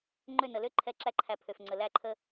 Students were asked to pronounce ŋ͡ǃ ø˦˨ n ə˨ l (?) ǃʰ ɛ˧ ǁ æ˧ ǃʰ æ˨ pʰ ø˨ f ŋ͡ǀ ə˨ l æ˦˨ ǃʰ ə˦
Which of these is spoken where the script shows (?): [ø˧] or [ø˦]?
ø˦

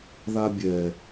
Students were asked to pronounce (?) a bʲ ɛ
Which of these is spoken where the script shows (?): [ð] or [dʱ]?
ð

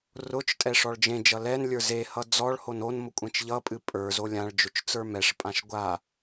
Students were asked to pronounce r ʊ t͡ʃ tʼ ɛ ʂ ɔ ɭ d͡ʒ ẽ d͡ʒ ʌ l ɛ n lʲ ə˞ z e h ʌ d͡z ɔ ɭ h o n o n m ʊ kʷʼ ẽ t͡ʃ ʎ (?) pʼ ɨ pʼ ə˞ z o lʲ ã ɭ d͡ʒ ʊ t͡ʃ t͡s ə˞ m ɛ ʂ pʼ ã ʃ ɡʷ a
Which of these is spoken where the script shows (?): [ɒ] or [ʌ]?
ʌ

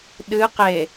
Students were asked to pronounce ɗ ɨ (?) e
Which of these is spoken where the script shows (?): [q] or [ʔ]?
q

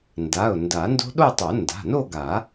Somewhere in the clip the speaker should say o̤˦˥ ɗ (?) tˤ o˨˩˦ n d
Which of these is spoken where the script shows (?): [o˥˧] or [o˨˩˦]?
o˥˧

